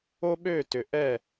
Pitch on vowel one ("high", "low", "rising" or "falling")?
high